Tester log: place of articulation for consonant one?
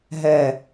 glottal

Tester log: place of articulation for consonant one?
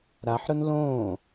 alveolar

